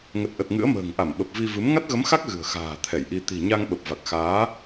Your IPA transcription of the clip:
ŋ ə˨˩ t̚ ʔ ə˨˩ t̚ ŋ ɨ̰˧˥ ə̯ m ə̤ː˨˩ ŋ ʔ a˧˩ m ɓ ə˨˩ p̚ v i˧ v ɨ˨˦ m ŋ a˦˥ t̚ ɣ ə˨˦ m x a˦˥ k̚ ɣ ɨ̤˨˩ ə̯ x a̤ː˨˩ t̪ʰ ɛ˧˩ j ʔ i˧ t̪ i̤˨˩ ɲ a˧ ŋ ɓ ə˨˩ p̚ v a˨˩ k̚ x aː˨˦

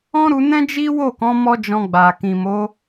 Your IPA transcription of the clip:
ɔ̃˦ ɾ u˧ n ɛ̃˦ d͡ʒ i˦ w o˦˨ k ɔ̃˨˦ m ɔ˦ d͡ʒ ɔ̃˧ ɡ͡b a˨ k ĩ˨ m o˨˦

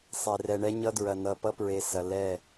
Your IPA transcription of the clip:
sˤ e˨ r ɛ˨ ɳ ɛ˦ ɲ ʌ˦ d ɹ ɐ˨ n ʌ˨ p ʌ˦ p ɹ e˨ s ɐ˨ l ɛ˦˨

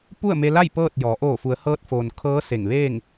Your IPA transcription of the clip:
p u˥˨ ə̯ m e˧ l a˥˨ j p ɤː˥˨ t̚ j ɔː˩˧ ʔ oː˧˩ f u˩˧ ə̯ h ɤː˧ t̚ f oː˩ n kʰ ɤː˧˥ s e˧˩ ŋ ʋ eː˥˨ ŋ

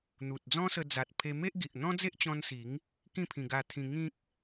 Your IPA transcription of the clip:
n̪ u˨ t̚ d͡z ɔ̃˦ s ə˧ d͡z a˨ t̚ pʰ e˧ m e˦ ʔ ɡ i˨ ʔ n̪ ɔ̃˦ d͡z e˦ ʔ t͡ɕ ɔ̃˧ n s i˨˦ ŋ | k ĩ˥˧ pʰ ĩ˧ ɡ a˧ t̪ʰ ĩ˧ ŋ ĩ˦ k̚

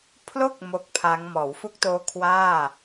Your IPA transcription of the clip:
pʰ l o˥˩ k̚ m o˦˥ k̚ pʰ a˦˥ ŋ m ɔː˩˦ w f u˦˥ k̚ t oː˦˥ kʰ w aː˥˩

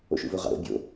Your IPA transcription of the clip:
o̰ ʃ ṵ v o ʁ ɑ̰ ɾ o̰ bʲ o̰

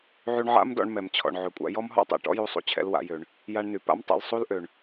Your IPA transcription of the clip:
ʕ y˧ ɳ ʕ a̰˥ m d ɔ̰˧ ɳ m ɛ˩ m t͡ɕʰ ɔ̰˩ ɳ ʕ ø˩ kʷʼ a̰˧ j ɔ˥ m ɦ ɔ̰˥ tˤ ɛ̰˩ ʈ ɔ̰˥ j u˧ sˤ ṵ˧ t͡ɕʰ ɛ̰˧ l w a̰˧ j ø˩ ɳ | j a˧ ɳ n y˩ p a̰˥ m tˤ ɛ̰˧ l sˤ u˥ l ʔ ø˩ ɳ

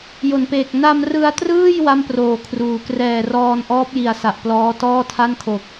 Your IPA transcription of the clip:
j o˨˩ n p eː˨˩ k̚ n a˧ m r ɯ˧ a̯ t r ɯː˥˩ j w a˥˩ m p r oː˨˩ kʰ r uː˨˩ k r ɛː˨˩ r ɔː˧ n ʔ ɔː˦˥ p̚ j i˨˩ a̯ s a˨˩ ʔ p l ɔː˦˥ t ɔː˥˩ tʰ a˥˩ n kʰ o˨˩ k̚

